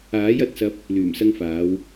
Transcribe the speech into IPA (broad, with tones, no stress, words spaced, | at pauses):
aː˨˥jɐ˨˥t̚sɐ˧p̚ | lyː˨˩msɐ˧ŋfaː˨˧w